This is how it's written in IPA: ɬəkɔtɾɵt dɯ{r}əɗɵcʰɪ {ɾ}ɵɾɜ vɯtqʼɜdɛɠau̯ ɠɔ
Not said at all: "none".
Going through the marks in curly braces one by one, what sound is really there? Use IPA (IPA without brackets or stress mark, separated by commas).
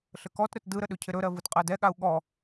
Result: ɾ, ɾ